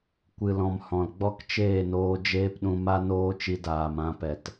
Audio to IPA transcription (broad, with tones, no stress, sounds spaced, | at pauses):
kʷ ɨ˨ l ɔ̃˨ m h ɔ̃˨ l ɡ͡b ɔ˦ k t͡ʃ eː˦˨ n oː˧ d͡ʒ eː˦ p ɗ ũ˧ m a˦ n oː˦ t͡ʃ i˧ d aː˨ m ã˧ p ɛ˨ t